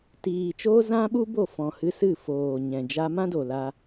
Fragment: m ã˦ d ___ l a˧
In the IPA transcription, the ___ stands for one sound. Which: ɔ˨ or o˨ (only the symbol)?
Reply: o˨